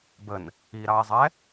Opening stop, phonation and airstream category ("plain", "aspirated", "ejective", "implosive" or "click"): plain